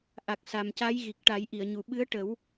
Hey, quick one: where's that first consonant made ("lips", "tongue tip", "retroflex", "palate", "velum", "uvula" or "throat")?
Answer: throat